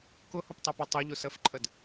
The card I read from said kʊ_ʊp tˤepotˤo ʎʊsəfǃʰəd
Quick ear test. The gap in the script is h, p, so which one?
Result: h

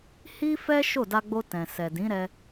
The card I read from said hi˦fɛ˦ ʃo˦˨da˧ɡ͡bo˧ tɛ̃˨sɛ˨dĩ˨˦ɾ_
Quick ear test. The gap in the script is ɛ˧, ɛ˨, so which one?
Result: ɛ˧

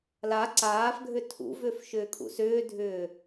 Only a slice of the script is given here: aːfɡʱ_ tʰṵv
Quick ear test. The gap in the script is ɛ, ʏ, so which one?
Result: ʏ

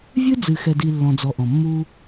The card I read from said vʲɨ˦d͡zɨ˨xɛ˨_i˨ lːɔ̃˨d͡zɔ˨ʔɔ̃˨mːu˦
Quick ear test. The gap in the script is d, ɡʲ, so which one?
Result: d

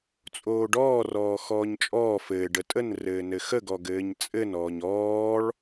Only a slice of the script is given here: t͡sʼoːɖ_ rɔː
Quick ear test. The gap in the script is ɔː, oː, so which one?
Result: ɔː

